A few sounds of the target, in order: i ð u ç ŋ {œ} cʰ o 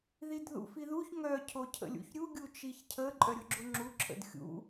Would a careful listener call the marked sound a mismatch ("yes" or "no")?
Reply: no